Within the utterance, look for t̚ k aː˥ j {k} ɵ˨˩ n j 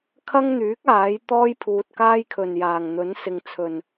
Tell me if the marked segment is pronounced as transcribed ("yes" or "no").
no